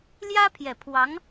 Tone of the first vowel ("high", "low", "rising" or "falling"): high